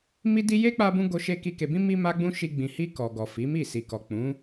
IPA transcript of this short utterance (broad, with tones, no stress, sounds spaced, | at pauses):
m i˦ d i˦ j e˦ k͡p a˧ b ũ˧ ɡ o˧ ʃ e˧ k i˧ k e˨ b ĩ˧ m i˧ m a˦ ɡ͡b ũ˦ ʃ i˧ ɡ͡b ĩ˨ h i˧ k ɔ˨ ɡ ɔ˨ f i˨˦ m i˦˨ s i˨ k ɔ˨ k͡p ũ˨˦